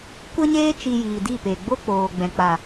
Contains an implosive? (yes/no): no